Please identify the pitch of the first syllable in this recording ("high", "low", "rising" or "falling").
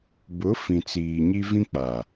rising